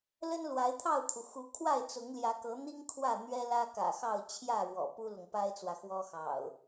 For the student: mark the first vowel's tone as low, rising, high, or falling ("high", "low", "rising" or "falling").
high